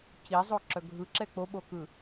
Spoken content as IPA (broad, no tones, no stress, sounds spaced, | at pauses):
c i zˤ o ǁ œ ɡʱ ɯ ǁ ɛ k͡p o ɓ o k ɯ